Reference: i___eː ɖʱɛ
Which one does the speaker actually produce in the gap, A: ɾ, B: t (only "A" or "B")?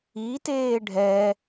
B